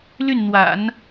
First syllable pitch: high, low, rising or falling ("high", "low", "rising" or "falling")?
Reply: falling